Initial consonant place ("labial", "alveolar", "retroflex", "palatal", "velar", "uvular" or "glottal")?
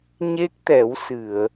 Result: palatal